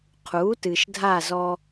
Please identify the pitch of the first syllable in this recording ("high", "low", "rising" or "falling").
rising